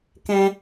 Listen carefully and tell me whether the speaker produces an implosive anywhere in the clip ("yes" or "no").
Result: no